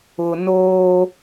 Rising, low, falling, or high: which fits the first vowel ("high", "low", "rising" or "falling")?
low